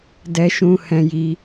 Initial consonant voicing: voiced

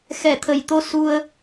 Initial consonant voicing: voiceless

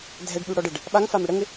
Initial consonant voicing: voiced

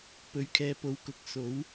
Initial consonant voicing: voiceless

